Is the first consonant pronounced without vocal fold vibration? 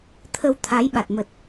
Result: yes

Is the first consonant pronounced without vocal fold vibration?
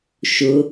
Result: yes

